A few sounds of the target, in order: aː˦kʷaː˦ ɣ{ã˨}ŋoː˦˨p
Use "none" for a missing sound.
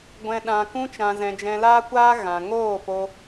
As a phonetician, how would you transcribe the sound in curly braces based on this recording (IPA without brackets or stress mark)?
ã˨